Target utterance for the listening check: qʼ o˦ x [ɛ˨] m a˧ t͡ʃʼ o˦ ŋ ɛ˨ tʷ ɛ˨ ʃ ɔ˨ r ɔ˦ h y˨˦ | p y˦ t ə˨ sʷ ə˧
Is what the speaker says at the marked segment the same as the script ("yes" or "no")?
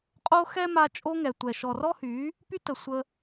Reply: no